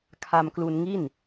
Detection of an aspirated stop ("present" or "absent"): present